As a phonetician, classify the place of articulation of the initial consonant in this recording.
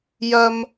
palatal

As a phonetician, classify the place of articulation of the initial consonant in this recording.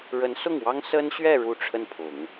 retroflex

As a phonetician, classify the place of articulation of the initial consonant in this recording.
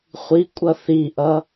uvular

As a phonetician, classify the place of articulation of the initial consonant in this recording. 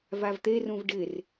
labial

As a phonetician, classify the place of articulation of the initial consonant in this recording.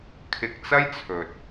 velar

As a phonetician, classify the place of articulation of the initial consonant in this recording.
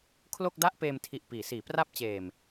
velar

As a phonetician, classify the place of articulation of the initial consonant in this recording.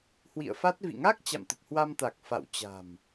glottal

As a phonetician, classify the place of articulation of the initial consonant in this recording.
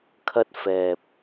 velar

